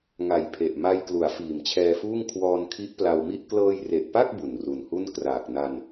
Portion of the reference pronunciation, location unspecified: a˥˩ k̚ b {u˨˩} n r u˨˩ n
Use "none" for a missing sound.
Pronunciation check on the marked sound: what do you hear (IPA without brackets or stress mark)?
u˨˩